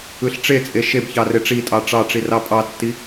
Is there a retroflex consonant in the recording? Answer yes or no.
yes